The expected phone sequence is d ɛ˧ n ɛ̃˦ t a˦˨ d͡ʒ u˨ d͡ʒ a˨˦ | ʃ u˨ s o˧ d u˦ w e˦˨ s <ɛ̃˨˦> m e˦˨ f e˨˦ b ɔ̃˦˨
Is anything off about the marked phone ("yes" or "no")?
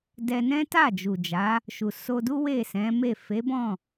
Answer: no